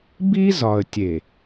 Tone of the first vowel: high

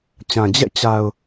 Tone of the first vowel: low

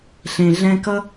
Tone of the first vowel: low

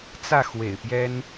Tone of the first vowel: falling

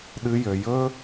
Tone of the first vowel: high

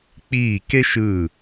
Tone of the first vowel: falling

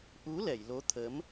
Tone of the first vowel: rising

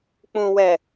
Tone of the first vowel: low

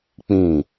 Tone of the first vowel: falling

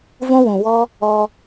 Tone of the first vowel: high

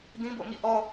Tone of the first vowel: high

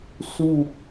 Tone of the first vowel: falling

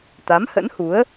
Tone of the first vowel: rising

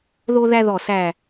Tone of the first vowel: high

